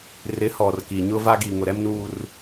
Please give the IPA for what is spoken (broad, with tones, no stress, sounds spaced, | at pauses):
r ɪ˨˦ h ɔ˨ r k i˨ ɲ ʊ˦ v a˦ ɡ i˨ ŋ ʊ˨ ɾ ɛ˦ m n uː˦ r